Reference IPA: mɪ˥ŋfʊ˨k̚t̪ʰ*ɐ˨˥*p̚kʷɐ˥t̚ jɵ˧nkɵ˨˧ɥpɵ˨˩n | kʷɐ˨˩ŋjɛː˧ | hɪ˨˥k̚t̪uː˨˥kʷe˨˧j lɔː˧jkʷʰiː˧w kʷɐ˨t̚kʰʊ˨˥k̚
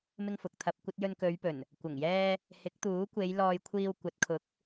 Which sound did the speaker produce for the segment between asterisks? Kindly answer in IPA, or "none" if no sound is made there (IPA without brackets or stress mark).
ɐ˧